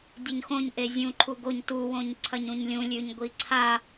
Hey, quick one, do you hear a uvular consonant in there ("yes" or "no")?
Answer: no